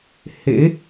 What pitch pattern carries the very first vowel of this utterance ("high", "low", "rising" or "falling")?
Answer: rising